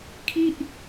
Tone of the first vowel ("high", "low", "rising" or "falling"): falling